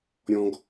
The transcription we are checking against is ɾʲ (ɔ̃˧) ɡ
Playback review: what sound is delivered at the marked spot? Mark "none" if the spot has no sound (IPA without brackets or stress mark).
ɔ̃˧